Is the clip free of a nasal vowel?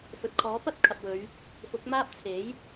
yes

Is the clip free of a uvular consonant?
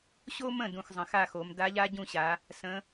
yes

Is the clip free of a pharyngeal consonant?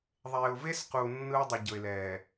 yes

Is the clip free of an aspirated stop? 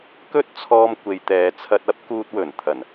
no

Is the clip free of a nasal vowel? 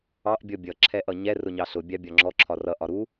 yes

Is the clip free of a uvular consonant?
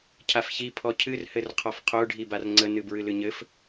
no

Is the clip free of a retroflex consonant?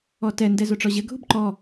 no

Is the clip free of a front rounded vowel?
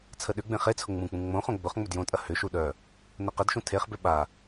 no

